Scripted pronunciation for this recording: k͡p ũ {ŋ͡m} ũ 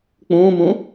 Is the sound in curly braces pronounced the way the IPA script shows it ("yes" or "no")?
no